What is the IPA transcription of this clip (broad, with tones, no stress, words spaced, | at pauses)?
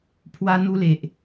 pʰwa˧n̪u˧le˨ʔ